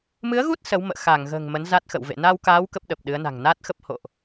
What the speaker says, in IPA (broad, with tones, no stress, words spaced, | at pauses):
mɨ˨˦ə̯ɣu˦˥t̚ sə˨˦wmə̰ː˧˨ xa˧˩ŋɣə̤ː˨˩ŋ mə˨˦nza˦˥t̚xə̰˧˨wvḛ˧˨ na˧wkaː˨˦w kə˦˥p̚ɗə˨˩p̚ɗɨ˨˦ə̯na̤˨˩ŋ naː˦˥t̚xə˦˥p̚ ho̰˧˨ʔ